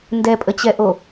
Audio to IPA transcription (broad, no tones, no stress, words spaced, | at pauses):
ndɛpʼət͡ɕɛʔo